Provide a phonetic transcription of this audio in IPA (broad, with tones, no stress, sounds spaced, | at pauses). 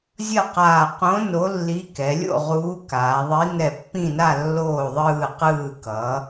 zʲ ʌ˥˩ q aː˧˩ q õ˨˥ n o˨˥ lː i˨˥ k ɛ˩˧ lʲ o̰˥˩ ʁ uː˨˥ k aː˩˧ ðˤ i˨˥ n ɛ˧˩ pː ĩ˥˩ n a˥˩ lː oː˥˩ ðˤ ɯː˧˩ q ɯː˧˩ k ʌ˩˧